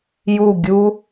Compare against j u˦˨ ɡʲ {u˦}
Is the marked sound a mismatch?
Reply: no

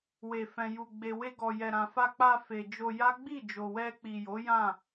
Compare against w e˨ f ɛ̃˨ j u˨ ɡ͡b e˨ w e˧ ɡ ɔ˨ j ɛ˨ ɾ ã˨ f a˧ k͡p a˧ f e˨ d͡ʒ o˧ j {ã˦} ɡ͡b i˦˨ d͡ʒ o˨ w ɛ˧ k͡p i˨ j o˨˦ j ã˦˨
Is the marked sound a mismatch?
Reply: yes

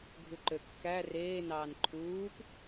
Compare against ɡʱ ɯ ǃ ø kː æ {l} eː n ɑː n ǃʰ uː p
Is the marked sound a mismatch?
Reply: yes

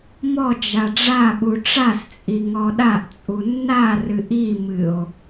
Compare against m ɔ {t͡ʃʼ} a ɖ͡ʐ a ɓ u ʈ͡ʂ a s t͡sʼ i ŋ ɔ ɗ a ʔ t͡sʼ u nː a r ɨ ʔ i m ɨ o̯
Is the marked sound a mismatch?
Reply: yes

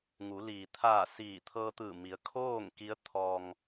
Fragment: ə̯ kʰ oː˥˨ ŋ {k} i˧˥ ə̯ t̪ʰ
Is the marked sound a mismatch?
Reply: no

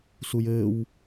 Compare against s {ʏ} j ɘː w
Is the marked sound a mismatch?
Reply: yes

